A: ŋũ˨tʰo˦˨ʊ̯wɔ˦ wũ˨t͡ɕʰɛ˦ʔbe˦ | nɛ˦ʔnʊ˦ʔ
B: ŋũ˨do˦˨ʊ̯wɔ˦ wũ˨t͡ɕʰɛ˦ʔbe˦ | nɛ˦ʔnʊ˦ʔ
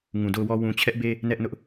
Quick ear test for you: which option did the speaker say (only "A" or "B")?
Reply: B